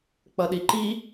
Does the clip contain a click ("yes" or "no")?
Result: yes